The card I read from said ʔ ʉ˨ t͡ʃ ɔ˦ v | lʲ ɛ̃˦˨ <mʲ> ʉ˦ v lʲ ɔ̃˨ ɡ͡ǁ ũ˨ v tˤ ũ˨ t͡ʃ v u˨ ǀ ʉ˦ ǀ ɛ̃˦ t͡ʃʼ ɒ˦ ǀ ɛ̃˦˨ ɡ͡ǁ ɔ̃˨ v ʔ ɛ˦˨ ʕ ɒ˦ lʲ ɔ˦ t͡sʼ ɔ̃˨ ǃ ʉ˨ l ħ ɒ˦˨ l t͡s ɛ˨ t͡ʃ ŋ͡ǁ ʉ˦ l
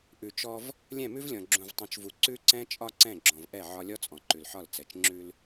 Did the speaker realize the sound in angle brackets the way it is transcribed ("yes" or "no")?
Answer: no